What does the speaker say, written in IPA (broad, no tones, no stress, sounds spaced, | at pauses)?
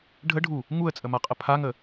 ɖʱ ə ɖʱ u | ŋ u ə̯ t͡sʼ ə m a qʼ ə pʰ a ŋ ə